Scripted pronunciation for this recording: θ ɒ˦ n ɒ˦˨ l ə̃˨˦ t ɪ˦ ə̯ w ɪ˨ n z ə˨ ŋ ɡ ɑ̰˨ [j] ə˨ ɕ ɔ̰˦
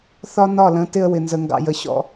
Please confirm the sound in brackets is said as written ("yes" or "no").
yes